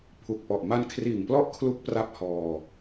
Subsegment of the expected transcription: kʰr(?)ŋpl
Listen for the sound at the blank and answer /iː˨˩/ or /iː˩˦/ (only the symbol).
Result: iː˨˩